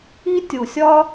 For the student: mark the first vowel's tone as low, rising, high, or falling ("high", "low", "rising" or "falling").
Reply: high